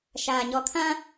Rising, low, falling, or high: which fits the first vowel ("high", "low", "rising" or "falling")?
low